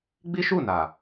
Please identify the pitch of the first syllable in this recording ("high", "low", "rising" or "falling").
high